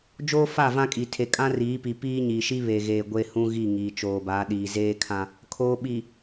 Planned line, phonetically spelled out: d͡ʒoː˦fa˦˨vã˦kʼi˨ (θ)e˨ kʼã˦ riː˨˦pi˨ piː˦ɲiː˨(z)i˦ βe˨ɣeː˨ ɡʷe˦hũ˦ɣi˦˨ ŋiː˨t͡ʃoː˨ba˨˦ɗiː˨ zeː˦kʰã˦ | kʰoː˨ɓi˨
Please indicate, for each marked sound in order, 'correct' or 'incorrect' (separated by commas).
incorrect, incorrect